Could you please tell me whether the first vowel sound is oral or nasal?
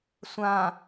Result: nasal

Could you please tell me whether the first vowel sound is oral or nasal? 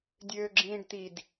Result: oral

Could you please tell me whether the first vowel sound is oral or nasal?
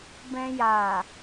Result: nasal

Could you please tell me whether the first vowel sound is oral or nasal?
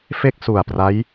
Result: oral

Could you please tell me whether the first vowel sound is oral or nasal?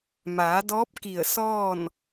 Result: oral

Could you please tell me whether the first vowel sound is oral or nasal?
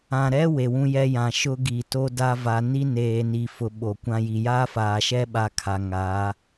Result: nasal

